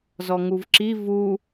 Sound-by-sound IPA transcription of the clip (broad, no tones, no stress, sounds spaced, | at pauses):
z ɔ ŋ u v ǁ i v u